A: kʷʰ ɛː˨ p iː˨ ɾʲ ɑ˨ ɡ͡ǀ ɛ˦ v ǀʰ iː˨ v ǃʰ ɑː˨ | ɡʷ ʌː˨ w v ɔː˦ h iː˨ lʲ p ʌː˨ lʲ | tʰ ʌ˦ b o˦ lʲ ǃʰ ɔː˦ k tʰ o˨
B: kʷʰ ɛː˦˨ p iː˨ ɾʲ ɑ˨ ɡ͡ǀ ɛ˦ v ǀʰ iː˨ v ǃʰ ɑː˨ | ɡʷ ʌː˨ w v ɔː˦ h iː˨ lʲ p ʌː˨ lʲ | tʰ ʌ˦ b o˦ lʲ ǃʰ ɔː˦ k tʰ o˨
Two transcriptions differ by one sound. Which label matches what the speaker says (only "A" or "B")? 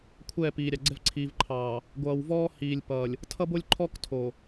B